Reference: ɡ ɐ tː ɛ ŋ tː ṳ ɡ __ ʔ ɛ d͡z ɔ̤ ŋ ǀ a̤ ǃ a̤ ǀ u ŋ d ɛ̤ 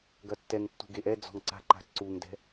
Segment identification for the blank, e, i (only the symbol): e